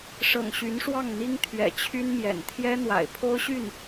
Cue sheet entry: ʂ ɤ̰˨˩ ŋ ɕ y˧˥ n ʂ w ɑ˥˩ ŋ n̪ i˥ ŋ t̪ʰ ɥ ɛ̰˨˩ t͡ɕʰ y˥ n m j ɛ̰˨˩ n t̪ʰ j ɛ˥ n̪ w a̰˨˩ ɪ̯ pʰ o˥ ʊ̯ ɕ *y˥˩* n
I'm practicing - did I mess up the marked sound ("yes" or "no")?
no